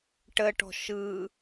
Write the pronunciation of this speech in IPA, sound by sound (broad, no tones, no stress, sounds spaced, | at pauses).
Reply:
ʈ ə ʈ ɔ̤ ʃ ɯ